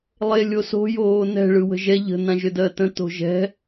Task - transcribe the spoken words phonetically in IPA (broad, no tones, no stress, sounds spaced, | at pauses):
lˠ e lʲ o s o̤ j oː n ɛ̤ ɭ ɯ w ə̤ ʒ ɛ ʎ ə̤ n ã ʒ ʏ d ɜ t ə̃ t o̤ ʒ ɛ̤